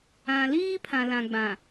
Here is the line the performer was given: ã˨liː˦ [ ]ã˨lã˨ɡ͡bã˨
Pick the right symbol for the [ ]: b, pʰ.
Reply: pʰ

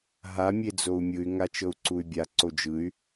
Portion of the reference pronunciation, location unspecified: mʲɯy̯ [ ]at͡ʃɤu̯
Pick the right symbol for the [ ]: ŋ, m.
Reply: ŋ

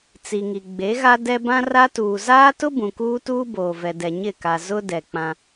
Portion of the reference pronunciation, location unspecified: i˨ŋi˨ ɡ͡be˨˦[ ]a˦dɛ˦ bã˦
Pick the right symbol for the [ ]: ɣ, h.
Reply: ɣ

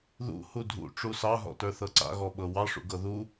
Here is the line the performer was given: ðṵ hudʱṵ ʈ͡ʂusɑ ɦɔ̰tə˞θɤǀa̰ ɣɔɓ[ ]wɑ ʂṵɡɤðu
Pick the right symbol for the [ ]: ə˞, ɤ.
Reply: ɤ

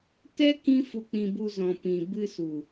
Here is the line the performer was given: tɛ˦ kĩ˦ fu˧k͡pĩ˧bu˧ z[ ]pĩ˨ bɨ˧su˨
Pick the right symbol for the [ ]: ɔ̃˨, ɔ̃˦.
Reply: ɔ̃˨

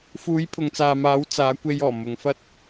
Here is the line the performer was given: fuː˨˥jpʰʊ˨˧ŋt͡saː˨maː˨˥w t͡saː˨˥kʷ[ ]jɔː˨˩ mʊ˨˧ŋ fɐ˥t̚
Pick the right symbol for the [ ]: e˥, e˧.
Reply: e˧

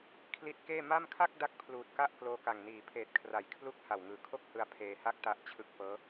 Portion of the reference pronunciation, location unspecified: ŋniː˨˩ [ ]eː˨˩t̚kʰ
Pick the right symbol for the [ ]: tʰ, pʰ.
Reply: pʰ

